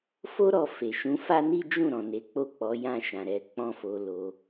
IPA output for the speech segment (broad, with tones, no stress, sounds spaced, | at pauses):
f o˦ ɾ ɔ˧ f e˨ ʃ ũ˨˦ f a˦ n i˦ d͡ʒ ũ˦˨ ɾ ɔ̃˨ n e˨˦ k͡p o˦˨ k͡p ɔ˨˦ j ã˦˨ ʃ ã˨ ɾ ɛ˨˦ k͡p ɔ̃˦ f o˧ l o˧